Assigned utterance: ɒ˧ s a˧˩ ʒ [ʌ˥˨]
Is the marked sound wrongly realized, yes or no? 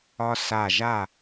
yes